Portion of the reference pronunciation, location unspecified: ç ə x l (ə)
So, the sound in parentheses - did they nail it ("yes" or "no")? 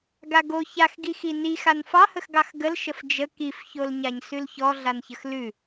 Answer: no